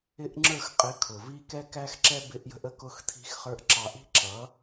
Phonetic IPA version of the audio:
ɪ˦ʔŋ͡ǁə˞˦˨x qʼɪ˨˦ kʰʊ˨vi˦ kɛ˦kæ˦xǁɛ˦ bɪ˧ʔjə̤˧ʔə˦ kʊ˧xtʰi̤˧xχə˞˧ʔ ǁɑ˨ʔi̤˦ ǁʌ˨˦

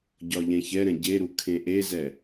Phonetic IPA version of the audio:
ɟɒʎɛ̃çɛɾɛ̃ ɟeɾu kʰẽʔezɛ

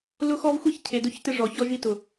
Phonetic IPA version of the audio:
lʊ˦xɔ˦vxʷi˦ç cʰe˨dʊ˦çtɪ˦ʐɔ˨ çɔ˦ʒi˦ tʊ˨

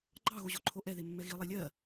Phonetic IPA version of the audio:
ɡ͡ǃɑɣo ʑoǃʰoʔɛðe mːɛɣilˠe lʲɜ

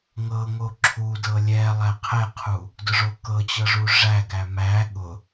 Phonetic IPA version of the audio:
ŋɤŋo ǁʰudɤ lʲɛ lˠæqʰɛqʰu | dʊʐokɤt͡ɕɤ ʐuʐæɡæ mæ ɠʊ

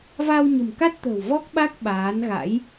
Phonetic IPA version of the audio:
va˧wɲə̤˨˩mka˦˥t̚t̪ə̤˨˩w vɔ˦˥k̚ɓa˦˥k̚ ɓaː˨˦nɣa̰˧˥j

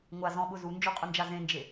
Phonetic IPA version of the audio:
ŋʷazɔ̃ɓʊ zund͡ʒoqʼʊnd͡ʒa zẽnd͡ʒe

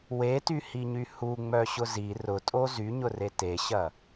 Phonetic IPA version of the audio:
wetyhiɲy huŋ͡mœɕʊ zi rʊtʼo zyɲʊre teɕɐ

